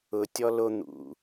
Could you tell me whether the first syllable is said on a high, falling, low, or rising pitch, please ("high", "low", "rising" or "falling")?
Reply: low